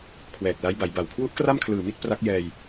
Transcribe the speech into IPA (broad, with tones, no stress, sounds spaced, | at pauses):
kʰ w ɛː˨˩ k̚ l a˦˥ j b a˩˦ j b a˨˩ w kʰ w u˦˥ ʔ k r a˥˩ m kʰ l ɯː˨˩ m i˥˩ t̚ p r a˦˥ k̚ j ɛː˧ j